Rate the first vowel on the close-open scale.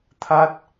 open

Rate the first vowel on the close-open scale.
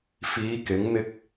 close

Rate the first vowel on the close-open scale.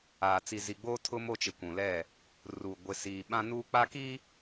open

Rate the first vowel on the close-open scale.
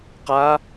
open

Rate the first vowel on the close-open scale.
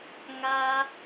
open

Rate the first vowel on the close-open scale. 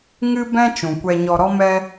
close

